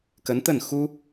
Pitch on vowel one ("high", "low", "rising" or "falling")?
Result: rising